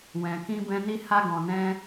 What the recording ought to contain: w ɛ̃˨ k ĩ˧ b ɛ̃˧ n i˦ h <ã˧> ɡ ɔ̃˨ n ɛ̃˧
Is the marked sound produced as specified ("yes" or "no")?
no